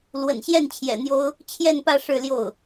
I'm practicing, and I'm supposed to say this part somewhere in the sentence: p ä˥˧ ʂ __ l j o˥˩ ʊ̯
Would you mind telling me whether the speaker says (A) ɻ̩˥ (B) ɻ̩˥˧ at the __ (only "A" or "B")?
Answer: B